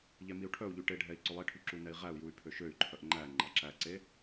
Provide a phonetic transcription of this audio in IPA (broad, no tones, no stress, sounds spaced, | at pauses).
ʎ ɛ m i u̯ ʈʰ œ u̯ ʎ y ʈ e ɖʱ ɛ i̯ ǀ ɵ lˠ e ʈʰ y ǁ u n ɛ i̯ ʁ æ u̯ j u y̯ pʰ ø ʃ ø y̯ ǃʰ œ ʔ ŋ͡ǃ æ ŋ͡ǃ ɑ ǁ æ ǀ e